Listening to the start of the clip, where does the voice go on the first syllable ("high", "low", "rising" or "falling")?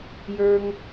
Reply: high